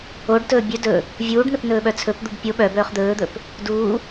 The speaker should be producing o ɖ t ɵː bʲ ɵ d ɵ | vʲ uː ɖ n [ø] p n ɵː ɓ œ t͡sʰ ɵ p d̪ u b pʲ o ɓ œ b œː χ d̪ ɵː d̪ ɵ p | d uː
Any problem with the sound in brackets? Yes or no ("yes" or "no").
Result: yes